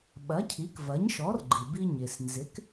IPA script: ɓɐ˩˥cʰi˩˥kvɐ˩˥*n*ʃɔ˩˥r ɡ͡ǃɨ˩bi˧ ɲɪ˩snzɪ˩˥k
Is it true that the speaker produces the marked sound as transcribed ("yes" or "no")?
no